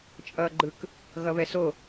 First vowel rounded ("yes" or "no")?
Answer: no